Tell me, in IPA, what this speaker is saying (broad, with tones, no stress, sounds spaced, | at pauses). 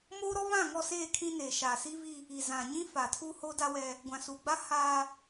m oː˦ ɾ ɔ˦ β ã˦˨ ŋ ɔ˦˨ s eː˦˨ kʰ ĩ˦ n eː˨ ʃ aː˨ s iː˦ v i˦ | i˨ z ã˨ ɲ ĩ˦ f a˨ tʰ u˦ h o˦ d a˦ w ɛ˦ | ɡʷ ã˨ s uː˨ ɡ͡b a˦ h aː˦